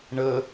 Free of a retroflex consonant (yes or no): no